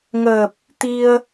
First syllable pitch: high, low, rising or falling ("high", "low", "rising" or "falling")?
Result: low